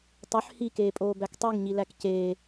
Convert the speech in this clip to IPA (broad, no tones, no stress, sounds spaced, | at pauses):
tˤ ø ħ h i k eː pʼ oː b æ k tˤ y ŋ ɲ i l æ k c eː